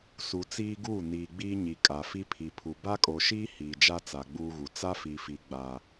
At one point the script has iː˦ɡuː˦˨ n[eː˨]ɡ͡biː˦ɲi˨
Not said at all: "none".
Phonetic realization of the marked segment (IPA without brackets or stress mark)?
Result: iː˨